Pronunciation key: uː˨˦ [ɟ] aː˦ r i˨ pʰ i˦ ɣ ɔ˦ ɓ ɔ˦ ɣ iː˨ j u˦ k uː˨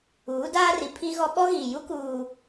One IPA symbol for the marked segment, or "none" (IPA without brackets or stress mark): d